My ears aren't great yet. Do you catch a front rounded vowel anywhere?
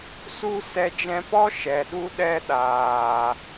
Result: no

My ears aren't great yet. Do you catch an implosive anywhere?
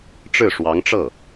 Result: no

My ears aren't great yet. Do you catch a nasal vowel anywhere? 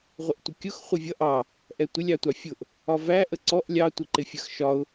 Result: no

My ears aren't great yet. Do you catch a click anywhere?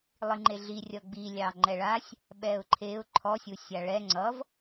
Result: yes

